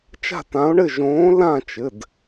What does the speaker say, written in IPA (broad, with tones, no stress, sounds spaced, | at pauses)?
t͡ʃ a̤˦˨ t ã˨˦ o̯ ɳ ɘ˦˨ ʒ õː˨˦ l ã˦˨ t͡ʃ ɘ˩˧˩ d